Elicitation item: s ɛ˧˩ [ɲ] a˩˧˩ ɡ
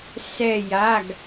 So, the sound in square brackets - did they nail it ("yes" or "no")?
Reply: no